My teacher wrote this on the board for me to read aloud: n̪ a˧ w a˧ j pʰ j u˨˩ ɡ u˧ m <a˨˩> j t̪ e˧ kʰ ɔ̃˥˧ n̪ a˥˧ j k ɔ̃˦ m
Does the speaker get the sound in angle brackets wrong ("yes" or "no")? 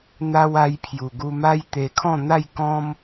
yes